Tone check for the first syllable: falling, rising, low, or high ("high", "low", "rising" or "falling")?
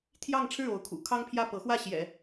falling